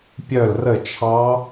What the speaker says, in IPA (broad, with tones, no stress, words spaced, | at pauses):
pʲœ˥˨lrə˥˨ t͡ʃʰɑ˦˥